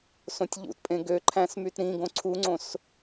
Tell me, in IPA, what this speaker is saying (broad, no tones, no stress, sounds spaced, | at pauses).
s õ tʲ ʎ ṵ t pʼ ẽ ɡ ø ǃʰ æ̃ s m y t ɾ ĩ ɡ õ ǀʰ u ŋ͡ǀ õ s